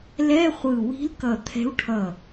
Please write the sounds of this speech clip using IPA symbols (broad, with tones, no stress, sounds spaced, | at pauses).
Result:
l ɛ˧˥˧ χʷ ɯ˧˩ w i̤˧˥ l k ʌ˧˩ t̪ʰ ɛ̤˧˥ w ʈʰ ʌ˧˩